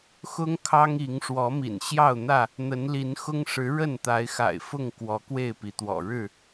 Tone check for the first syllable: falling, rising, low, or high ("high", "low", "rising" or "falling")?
high